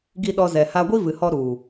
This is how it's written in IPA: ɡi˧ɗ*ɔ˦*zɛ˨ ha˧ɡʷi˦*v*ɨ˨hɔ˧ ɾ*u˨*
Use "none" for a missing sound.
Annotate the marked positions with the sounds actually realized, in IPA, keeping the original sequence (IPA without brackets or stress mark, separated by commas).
ɔ˧, v, u˨